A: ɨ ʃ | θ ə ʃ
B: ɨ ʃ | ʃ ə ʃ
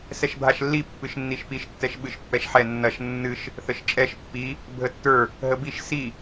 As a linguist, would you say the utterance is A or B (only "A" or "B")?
A